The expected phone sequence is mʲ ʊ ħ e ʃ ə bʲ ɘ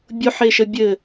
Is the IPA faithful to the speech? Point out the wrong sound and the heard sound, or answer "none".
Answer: mʲ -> bʲ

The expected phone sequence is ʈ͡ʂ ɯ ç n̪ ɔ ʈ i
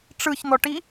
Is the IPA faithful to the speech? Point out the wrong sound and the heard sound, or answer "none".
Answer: none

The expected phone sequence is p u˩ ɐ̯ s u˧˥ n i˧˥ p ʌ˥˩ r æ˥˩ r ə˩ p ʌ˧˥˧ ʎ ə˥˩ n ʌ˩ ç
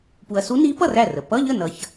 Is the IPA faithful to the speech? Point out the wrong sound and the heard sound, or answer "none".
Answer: none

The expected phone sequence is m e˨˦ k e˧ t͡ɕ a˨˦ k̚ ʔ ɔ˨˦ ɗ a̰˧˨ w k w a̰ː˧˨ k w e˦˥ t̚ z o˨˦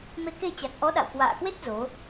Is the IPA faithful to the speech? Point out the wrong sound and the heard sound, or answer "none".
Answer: a˨˦ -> a˨˩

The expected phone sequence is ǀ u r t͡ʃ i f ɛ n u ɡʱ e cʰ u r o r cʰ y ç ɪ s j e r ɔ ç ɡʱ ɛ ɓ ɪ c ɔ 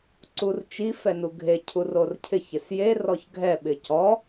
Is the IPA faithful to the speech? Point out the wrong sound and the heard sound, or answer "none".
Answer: y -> ɪ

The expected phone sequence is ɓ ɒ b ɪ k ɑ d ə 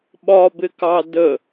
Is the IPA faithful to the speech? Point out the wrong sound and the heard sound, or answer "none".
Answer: none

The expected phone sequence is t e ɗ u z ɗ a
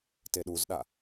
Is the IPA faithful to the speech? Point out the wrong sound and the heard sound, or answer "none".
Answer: none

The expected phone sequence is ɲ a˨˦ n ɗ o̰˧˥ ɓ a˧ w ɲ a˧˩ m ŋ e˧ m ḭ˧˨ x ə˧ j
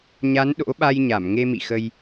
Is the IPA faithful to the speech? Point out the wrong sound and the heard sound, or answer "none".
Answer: w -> j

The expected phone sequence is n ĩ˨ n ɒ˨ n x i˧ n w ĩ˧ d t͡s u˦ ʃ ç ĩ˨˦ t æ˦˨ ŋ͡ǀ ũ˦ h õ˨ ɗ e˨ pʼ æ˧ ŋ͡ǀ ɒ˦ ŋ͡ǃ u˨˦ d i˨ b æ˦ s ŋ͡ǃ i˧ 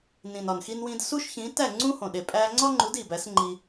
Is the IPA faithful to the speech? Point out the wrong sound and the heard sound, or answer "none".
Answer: t͡s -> s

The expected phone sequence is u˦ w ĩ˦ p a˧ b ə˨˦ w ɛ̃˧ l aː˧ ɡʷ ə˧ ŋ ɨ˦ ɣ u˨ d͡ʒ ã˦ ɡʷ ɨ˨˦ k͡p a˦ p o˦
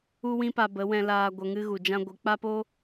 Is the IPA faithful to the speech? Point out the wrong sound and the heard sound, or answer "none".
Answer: none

